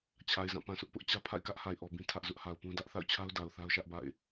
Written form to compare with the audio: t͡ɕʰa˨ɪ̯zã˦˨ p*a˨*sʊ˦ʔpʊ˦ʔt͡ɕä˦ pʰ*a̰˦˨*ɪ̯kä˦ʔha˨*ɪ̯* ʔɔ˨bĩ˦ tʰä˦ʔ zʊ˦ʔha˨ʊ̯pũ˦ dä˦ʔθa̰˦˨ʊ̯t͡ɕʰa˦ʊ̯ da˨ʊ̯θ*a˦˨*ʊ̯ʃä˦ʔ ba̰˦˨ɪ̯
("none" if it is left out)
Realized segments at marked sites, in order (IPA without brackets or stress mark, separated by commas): ã˨, a̰˦˨, ɪ̯, a˦